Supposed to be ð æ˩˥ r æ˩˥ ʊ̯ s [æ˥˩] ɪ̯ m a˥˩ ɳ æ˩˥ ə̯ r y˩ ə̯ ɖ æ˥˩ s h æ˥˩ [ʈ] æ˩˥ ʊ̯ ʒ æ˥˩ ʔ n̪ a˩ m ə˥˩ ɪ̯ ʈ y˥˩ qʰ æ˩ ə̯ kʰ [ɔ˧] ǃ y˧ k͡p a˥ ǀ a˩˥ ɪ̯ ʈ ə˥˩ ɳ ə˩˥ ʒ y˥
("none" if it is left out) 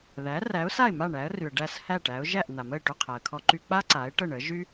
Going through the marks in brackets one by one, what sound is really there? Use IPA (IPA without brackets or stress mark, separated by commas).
a˥˩, ʈ, ɔ˧